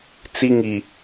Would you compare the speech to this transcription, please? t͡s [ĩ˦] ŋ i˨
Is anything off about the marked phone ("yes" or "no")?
yes